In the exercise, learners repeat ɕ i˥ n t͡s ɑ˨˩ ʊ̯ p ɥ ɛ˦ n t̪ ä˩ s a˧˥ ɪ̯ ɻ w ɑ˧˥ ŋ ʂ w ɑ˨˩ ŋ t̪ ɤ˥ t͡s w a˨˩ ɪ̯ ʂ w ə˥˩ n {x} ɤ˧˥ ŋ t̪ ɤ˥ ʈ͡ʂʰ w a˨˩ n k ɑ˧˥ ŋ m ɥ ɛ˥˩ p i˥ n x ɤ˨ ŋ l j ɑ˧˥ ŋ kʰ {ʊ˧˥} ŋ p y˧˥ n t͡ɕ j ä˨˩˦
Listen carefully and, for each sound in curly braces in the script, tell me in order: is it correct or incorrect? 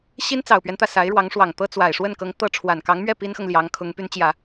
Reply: incorrect, correct

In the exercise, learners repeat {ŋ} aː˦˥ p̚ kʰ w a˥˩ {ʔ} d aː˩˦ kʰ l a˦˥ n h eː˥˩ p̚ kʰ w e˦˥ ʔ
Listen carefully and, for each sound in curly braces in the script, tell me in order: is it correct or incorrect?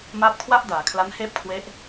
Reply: incorrect, correct

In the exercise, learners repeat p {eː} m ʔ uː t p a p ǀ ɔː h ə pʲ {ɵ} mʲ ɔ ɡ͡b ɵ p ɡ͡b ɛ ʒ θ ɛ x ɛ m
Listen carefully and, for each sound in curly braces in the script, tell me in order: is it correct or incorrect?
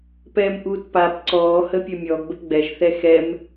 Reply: incorrect, correct

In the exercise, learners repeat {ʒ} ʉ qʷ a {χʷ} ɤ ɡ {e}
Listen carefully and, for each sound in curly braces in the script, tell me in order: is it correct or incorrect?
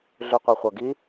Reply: incorrect, correct, incorrect

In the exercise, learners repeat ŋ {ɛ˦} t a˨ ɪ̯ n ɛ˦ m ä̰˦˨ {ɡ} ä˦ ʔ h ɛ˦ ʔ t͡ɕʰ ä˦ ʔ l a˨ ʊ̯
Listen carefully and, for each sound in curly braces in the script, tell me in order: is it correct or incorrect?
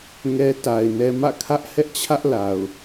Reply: correct, incorrect

